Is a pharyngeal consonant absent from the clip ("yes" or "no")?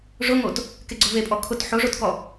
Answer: no